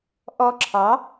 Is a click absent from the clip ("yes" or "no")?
no